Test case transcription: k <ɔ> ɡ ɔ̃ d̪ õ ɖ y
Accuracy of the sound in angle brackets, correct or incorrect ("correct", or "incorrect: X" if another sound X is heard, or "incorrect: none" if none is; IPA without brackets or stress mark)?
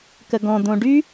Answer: incorrect: ə